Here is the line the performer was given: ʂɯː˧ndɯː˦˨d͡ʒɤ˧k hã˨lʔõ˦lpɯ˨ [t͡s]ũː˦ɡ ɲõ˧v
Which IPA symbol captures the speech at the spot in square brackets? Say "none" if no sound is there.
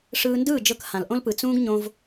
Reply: t͡s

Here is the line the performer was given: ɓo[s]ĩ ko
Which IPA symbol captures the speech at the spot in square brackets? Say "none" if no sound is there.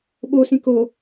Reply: s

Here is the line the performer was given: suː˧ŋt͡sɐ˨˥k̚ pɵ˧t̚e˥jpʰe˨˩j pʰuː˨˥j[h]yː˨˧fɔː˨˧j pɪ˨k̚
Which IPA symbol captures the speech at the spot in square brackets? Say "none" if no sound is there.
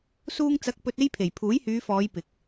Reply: h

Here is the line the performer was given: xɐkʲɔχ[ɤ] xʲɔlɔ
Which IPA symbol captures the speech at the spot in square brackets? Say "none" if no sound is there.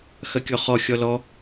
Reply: ɔ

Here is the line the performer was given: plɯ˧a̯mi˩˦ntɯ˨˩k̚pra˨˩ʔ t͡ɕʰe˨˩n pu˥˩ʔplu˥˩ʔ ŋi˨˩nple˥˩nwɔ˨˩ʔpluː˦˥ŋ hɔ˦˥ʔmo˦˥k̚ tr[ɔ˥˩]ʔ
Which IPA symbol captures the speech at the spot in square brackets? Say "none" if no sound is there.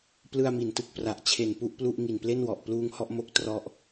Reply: ɔ˦˥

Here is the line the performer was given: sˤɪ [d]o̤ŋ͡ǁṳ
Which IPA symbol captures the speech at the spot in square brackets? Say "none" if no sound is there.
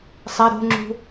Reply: ɾ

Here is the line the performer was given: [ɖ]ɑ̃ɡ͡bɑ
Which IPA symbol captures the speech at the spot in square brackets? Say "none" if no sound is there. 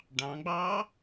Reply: ɖ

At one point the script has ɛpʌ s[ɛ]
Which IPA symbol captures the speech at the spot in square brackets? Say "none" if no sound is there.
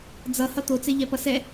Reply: ɛ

